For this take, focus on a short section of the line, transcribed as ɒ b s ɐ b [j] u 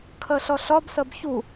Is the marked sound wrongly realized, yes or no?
yes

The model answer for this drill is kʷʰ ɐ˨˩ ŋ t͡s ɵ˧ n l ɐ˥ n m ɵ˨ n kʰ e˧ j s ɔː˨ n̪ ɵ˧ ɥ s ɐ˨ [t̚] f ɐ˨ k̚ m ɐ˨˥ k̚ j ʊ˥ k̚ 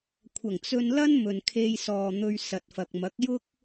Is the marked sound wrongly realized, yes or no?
no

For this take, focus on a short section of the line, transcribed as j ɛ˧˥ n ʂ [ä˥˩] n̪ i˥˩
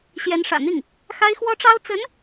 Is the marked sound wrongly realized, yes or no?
yes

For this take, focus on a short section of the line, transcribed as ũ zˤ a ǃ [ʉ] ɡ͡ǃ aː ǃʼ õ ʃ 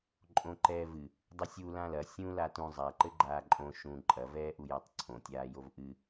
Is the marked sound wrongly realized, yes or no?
yes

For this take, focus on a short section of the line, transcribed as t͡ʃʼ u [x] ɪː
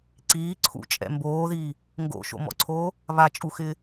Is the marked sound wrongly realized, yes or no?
no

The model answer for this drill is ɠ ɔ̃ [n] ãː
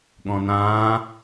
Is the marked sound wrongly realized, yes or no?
no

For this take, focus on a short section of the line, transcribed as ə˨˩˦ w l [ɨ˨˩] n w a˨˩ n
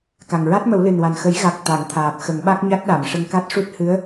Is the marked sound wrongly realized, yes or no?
no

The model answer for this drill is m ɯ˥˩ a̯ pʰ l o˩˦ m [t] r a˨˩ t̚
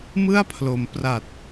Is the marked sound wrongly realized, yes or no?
yes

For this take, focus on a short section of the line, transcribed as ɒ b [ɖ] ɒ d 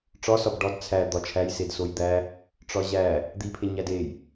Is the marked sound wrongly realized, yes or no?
no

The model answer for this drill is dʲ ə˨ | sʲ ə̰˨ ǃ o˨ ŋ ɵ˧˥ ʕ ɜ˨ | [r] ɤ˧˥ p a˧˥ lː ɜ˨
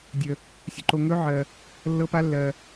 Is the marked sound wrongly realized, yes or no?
yes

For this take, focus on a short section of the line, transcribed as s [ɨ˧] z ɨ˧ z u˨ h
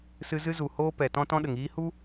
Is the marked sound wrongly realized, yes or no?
no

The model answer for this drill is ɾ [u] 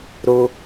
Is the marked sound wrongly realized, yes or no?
yes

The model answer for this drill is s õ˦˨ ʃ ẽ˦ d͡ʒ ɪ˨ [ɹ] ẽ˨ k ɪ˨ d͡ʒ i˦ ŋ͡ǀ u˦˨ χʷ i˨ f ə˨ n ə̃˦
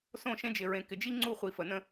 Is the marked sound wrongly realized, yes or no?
no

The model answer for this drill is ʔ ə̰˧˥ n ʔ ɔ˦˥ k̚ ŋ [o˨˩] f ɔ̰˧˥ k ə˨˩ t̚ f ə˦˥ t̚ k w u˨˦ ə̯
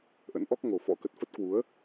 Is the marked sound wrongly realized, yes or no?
no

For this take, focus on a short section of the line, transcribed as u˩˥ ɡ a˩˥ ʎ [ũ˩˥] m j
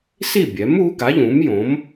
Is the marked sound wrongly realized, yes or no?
no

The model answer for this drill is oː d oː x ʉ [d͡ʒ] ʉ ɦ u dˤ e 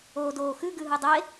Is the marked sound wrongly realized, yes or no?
yes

